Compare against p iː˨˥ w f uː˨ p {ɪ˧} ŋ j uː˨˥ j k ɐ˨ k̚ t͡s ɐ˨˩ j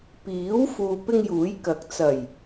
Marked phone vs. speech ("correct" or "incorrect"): correct